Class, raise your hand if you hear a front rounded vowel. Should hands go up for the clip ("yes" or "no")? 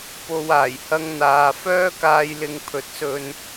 yes